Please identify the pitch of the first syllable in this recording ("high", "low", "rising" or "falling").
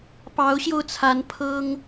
rising